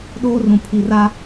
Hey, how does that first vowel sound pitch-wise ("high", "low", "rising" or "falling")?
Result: high